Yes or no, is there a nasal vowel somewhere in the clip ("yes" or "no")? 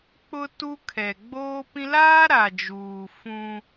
yes